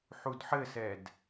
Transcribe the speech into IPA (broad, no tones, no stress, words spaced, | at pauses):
ħudħɘsɛd